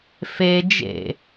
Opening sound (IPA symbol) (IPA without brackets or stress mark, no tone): f